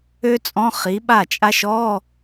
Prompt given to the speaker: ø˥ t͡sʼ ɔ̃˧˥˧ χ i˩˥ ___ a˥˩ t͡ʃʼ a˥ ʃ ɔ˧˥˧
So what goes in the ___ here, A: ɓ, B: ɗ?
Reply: A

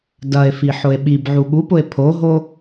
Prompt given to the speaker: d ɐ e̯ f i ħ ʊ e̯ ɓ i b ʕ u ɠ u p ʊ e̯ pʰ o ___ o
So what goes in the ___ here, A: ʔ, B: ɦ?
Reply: B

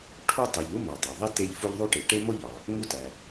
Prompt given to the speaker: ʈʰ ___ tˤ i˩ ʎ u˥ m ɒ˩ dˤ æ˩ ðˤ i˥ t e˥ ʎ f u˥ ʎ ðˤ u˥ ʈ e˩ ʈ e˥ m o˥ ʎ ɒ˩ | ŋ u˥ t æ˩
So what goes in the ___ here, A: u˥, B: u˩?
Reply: A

